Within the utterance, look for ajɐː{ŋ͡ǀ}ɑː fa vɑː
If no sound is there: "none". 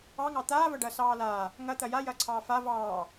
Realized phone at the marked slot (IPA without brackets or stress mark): ǀʰ